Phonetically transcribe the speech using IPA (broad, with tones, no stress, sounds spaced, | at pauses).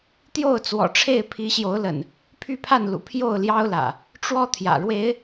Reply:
t̪ j o˥˨ ʊ̯ t͡s w ɔ̰˨˩ ʈ͡ʂʰ e˥˨ ɪ̯ pʰ i˨˦ ɕ j o˨˦ ʊ̯ l ə̰˨˩ n | pʰ y˥˨ pʰ a˥˨ n l ṵ˨˩ pʰ j o˥˨ ʊ̯ l j ɑ˦ ʊ̯ l ä̰˨˩ | ʈ͡ʂ w ɔ˦ t̪ʰ j ä̰˨˩ ɻ w e˨˦ ɪ̯